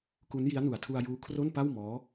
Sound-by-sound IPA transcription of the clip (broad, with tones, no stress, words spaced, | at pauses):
ku˦˥n ji˦˥a̯nu˨˩a̯tʰu˧a̯juː˦˥ kʰro˥˩npa˥˩w mɔː˦˥